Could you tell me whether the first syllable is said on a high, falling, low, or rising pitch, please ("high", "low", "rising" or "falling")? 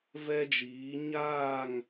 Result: high